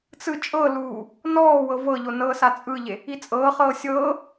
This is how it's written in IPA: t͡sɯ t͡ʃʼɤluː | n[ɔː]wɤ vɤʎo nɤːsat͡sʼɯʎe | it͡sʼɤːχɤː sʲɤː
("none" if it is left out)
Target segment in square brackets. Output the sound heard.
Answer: ɔː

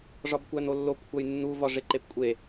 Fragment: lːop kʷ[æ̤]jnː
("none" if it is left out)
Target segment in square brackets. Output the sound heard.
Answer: æ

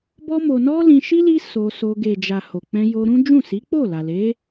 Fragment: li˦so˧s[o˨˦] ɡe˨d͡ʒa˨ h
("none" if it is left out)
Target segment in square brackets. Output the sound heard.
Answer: o˧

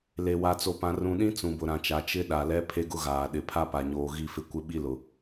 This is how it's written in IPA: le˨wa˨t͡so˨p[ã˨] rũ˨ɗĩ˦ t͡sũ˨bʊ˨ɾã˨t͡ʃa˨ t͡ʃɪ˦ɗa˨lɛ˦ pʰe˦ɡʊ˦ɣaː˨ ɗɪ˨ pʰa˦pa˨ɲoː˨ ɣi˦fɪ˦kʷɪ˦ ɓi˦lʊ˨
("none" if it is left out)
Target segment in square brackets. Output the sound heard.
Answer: ã˨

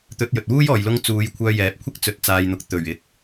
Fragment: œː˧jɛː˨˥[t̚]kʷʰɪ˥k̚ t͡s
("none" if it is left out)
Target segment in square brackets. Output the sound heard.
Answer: p̚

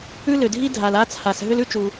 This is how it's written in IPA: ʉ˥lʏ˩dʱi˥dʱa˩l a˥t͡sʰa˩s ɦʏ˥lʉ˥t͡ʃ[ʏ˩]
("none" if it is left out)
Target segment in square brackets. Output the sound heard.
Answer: u˩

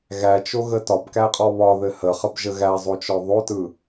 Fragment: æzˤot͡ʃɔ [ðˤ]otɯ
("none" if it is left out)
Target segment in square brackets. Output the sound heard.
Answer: ðˤ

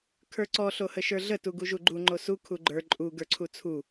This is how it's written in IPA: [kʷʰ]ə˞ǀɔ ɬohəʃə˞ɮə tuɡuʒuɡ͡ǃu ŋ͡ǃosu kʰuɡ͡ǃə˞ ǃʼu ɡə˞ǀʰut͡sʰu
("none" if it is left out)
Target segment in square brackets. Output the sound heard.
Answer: kʰ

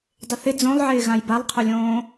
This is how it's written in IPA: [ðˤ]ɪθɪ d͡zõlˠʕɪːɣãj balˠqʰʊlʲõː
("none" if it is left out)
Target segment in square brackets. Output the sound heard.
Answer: dˤ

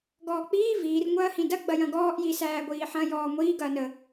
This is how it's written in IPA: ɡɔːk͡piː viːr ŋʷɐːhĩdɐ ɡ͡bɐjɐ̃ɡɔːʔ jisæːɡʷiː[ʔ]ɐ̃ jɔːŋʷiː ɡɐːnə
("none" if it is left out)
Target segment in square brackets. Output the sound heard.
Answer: ħ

